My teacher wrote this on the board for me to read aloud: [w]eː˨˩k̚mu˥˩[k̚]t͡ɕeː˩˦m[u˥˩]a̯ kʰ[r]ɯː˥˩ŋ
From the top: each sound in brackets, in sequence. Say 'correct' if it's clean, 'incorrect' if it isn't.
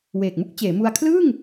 correct, correct, incorrect: u˧, incorrect: l

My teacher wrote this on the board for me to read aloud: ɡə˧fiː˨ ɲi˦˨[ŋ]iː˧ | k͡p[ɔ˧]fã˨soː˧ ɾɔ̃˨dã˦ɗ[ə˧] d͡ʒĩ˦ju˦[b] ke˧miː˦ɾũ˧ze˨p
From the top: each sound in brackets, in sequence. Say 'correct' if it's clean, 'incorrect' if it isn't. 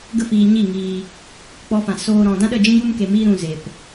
correct, correct, incorrect: ə˦˨, incorrect: m

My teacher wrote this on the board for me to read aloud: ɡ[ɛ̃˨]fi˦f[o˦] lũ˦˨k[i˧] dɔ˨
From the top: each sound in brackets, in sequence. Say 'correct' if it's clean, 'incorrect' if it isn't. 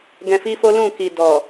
incorrect: ɛ̃˧, correct, incorrect: i˨

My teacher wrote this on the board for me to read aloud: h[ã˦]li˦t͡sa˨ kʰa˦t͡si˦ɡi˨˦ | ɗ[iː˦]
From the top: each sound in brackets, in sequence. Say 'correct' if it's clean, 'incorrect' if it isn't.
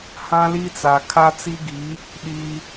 correct, correct

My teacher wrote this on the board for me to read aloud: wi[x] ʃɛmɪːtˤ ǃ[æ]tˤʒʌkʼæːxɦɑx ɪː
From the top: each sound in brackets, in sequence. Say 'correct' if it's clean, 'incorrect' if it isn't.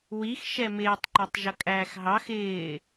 correct, correct

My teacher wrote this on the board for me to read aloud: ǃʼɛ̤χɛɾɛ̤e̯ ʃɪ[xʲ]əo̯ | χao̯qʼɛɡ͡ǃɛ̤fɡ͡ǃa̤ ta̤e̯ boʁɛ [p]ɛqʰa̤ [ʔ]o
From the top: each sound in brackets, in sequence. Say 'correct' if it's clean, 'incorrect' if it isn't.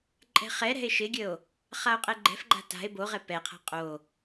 incorrect: ɡʲ, correct, incorrect: qʼ

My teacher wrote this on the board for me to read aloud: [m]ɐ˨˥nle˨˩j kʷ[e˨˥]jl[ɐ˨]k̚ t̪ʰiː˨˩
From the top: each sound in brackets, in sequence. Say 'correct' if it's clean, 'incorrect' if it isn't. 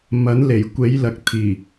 correct, correct, correct

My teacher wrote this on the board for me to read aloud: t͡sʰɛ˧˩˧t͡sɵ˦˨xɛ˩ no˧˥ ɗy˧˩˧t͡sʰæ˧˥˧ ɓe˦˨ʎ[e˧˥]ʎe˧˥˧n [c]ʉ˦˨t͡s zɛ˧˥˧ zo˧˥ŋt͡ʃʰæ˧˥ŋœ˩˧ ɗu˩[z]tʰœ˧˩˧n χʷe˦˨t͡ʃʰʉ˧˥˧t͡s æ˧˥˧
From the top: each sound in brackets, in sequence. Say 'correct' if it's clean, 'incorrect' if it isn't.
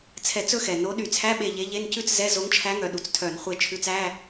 correct, correct, incorrect: t͡s

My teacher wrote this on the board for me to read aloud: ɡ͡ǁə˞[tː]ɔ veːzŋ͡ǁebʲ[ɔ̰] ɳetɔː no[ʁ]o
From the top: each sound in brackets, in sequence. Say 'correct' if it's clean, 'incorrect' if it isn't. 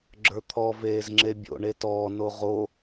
incorrect: t̪ʰ, incorrect: o̰, correct

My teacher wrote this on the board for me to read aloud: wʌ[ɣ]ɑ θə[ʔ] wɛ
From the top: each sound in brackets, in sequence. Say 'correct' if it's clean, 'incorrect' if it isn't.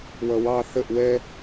incorrect: w, correct

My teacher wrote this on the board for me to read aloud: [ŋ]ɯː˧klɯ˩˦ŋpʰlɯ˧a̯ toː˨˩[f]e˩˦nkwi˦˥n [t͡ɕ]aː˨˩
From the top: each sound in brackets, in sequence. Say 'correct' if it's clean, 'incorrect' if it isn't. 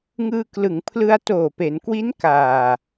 correct, incorrect: p, incorrect: k

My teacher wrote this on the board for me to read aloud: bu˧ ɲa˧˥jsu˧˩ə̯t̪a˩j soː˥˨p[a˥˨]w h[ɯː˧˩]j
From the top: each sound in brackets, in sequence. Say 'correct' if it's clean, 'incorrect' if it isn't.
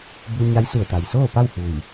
correct, incorrect: uː˧˩

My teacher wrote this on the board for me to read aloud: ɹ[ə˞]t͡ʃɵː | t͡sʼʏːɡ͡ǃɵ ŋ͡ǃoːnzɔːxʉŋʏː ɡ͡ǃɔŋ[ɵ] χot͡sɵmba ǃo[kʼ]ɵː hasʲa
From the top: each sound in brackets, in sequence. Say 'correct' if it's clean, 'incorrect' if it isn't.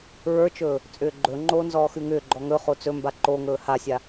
correct, correct, incorrect: ŋ

